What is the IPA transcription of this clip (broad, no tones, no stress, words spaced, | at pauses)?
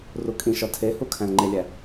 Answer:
rukʼĩʃɒ tʰehu kʰæ̃lŋ͡ǃelʲæ